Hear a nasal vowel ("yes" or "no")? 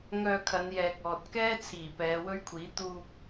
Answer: no